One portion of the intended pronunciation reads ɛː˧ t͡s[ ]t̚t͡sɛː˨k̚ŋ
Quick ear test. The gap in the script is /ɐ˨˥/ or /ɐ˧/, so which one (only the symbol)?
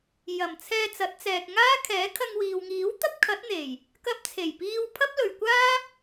ɐ˨˥